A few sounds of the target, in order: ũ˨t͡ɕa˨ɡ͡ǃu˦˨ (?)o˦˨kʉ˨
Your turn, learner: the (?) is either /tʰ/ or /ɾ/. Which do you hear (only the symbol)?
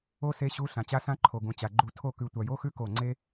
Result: tʰ